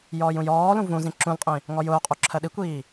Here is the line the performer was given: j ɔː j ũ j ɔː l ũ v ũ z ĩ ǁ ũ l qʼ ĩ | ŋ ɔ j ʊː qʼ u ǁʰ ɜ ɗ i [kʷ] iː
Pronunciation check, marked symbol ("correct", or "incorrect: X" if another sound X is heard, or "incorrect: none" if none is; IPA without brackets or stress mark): correct